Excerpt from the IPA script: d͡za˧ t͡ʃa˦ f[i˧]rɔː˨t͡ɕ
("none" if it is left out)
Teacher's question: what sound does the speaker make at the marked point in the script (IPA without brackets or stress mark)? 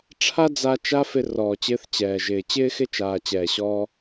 ɪ˧